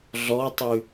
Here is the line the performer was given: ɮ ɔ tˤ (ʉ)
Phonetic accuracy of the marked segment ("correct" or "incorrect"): correct